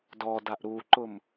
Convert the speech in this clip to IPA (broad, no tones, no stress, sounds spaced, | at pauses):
d ɔ d a ʔ ɾ u ǃ ʊ m